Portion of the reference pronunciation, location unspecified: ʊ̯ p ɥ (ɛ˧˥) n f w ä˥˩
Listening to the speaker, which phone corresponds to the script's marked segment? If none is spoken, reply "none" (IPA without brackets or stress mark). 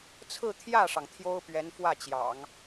ɛ˧˥